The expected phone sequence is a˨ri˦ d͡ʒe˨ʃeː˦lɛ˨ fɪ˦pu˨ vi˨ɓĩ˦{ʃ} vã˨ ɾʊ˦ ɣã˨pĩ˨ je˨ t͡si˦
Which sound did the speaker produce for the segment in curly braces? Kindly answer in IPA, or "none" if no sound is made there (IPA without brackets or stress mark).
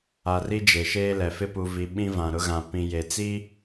none